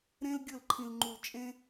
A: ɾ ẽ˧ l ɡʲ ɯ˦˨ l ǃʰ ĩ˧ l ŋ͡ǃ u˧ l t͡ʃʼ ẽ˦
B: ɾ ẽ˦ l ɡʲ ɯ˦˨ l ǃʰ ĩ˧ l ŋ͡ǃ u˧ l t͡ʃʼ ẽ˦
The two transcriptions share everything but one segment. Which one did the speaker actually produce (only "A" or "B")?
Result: B